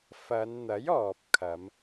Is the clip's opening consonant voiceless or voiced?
voiceless